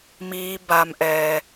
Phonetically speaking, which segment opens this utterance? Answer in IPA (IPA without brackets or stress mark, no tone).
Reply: m